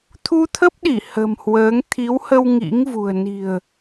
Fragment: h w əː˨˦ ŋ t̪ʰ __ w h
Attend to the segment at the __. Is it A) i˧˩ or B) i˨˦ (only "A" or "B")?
B